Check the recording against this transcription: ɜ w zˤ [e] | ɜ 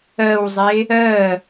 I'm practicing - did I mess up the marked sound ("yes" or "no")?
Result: no